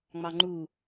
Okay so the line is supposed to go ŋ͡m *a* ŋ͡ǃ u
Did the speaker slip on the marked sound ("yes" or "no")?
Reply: yes